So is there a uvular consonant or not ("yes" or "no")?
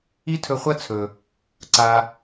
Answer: yes